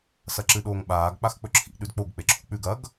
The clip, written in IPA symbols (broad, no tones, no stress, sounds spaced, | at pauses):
s ɐ ǁ ɨ ɗ oː ŋ ɓ aː ɡ k͡p a x k͡p ɵ ǁʰ ḭ ɗ ʉ d k͡p o ɡ k͡p e ǁʰ ṳ k͡p ʉ ɡ ɐ ɡ